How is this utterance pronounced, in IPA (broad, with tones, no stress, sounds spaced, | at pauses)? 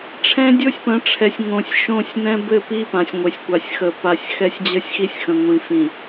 ʈ͡ʂʰ ɛ̃˦ dʲ o˦ sʲ p ə̃˨˦ ʈ͡ʂʰ ɛ˨ sʲ ŋ õ˨ sʲ ʃ õ˦˨ sʲ n ɛ̃˦ b ɘ˦˨ p i˦ p ã˨ sʲ ŋʷ e˨ sʲ kʷ a˨ sʲ x ə˨ p a˨ sʲ x ɛ˦ sʲ d͡ʑ ə˦ sʲ x i˦ sʲ x ə̃˨ ŋʷ ĩ˨ f ĩ˨